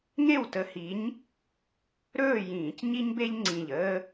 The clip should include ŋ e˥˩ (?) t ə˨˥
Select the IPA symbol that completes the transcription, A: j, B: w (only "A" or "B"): B